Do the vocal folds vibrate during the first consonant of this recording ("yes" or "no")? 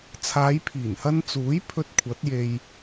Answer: no